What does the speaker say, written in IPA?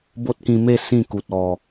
b o˦ t̚ k ĩ˧ m e˥˧ s ĩ˥˧ k u˨ t̚ ɔ˨˩

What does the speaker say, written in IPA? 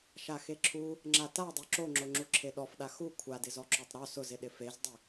ʃ a x e ǁʰ u | ŋ͡ǁ a t a dˤ o ǁ o ŋ͡ǁ o ŋ͡ǁ u ǁʰ e ɗ ɔ f ɗ a x u kʷʰ a d ɪ z ɔ ǁ o tˤ ɾ ɔ s ʊ z ɪ ɗ ɪ f e z dˤ ɪ

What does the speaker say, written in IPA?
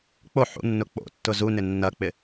k͡p o ħ ṵ nː ʊ k͡p o̰ tː ʊ z u n ɪ nː ɐ k͡p ɪ

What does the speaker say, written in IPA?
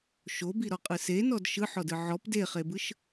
ʃ o b i ɾ ɔ qʼ ɯ s e n ɔ d ʃ ɯ ħ ɔ d ɯ ʕ ɔ p d e χ e b ɯ ʃ

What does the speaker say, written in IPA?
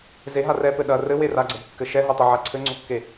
z e ɦ a r ɛ p ɘ ɗ ɐ r ɘ w e r a ɡ͡ǀ ɐ b kː ɘ ʃ ɛ ɦ o tˤ ɘ ʕ a ǀʰ ɘ ŋ͡ǀ o kː e

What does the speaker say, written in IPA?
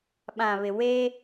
ɓ ã˨ β ɪ˨ w e˦

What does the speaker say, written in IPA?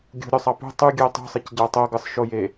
ɡʲ ṳ ɾʲ o sˤ ɑ p ṳ tˤ y ɡʲ ɯ o̯ tˤ ṳ sˤ e c ɟ ɑ tˤ o ɡ ɯ sˤ ʃ o j e

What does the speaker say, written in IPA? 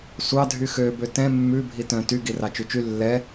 sʷ ɑ dʱ y x ø b ø t ɛ̃ mː ʉ bʱ i t œ̃ t y ɡ i r ɑ t͡ʃ ʉ t͡ʃ y lː ɛ

